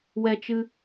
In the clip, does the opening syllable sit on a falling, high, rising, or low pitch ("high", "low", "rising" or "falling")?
high